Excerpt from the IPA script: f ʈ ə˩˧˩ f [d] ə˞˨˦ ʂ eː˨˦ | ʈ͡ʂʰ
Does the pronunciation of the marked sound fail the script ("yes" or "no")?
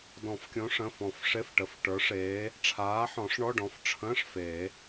yes